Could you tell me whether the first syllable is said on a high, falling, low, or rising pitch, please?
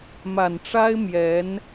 low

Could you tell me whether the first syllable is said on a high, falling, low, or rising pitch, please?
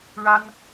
high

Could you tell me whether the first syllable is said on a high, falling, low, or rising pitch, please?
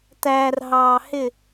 low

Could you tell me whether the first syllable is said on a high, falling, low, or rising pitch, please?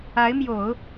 rising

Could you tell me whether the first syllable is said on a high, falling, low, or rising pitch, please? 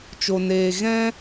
low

